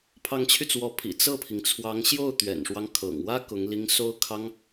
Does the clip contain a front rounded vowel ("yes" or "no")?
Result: yes